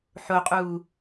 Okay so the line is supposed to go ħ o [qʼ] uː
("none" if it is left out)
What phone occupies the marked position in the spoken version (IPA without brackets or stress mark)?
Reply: qʼ